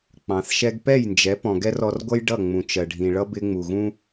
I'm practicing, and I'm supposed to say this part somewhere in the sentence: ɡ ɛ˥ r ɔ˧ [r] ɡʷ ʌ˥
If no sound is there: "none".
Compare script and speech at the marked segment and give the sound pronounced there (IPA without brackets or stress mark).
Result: r